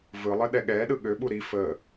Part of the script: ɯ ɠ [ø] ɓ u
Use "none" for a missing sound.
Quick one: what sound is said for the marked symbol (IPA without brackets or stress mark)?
ø